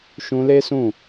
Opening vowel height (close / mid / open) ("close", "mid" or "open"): close